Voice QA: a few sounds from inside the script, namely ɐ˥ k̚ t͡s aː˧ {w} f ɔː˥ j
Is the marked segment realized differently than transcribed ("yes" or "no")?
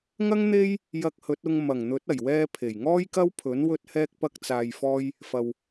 yes